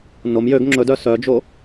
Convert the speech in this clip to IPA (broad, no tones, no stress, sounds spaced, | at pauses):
n o m j ø ɡ ŋ͡ǁ ɵ d œ s œ d͡ʒ o